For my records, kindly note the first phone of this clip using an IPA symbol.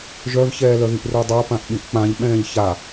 ʒ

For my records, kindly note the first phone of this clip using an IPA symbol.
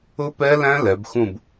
ʊ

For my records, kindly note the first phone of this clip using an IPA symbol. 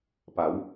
p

